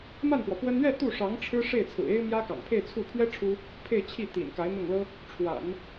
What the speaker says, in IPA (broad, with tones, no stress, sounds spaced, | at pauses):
m a˥˩ n p w ɔ˩ p w ə˥ n ɥ ɛ˥˧ t̪ u˥˩ ʂ ɑ˧˥ ŋ ʈ͡ʂʰ ɻ̩˥ ʂ e˥˩ ɪ̯ t͡sʰ ɹ̩˨˩ e˥ ɪ̯ m j ä˥ k ɑ̰˨˩ ŋ pʰ e˥˧ ɪ̯ t͡sʰ u˥˩ pʰ ɥ ɛ˥ ʈ͡ʂʰ u˥ | pʰ e˥˧ ɪ̯ t͡ɕʰ i˥˩ t̪ ḭ˨˩ n k a˧˥ ɪ̯ n̪ ʊ˥˩ ŋ l ɤ˥ | ʈ͡ʂʰ w a̰˨˩˦ n